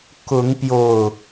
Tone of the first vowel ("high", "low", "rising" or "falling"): rising